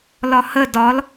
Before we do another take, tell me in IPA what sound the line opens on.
l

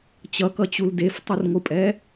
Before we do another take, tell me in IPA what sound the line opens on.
t͡ɕ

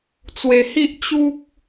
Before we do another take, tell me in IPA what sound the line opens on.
t͡s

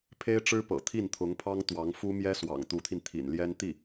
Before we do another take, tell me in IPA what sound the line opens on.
pʰ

